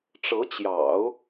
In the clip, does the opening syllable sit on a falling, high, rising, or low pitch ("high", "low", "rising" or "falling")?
rising